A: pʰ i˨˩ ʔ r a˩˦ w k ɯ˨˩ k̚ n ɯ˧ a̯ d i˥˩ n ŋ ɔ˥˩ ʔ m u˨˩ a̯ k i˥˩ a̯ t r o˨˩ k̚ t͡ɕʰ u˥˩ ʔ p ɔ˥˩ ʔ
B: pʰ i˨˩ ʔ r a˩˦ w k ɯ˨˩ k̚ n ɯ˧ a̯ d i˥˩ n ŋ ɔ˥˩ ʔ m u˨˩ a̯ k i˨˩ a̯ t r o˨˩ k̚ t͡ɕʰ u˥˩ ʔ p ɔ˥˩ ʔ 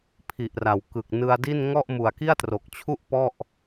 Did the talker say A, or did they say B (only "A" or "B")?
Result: A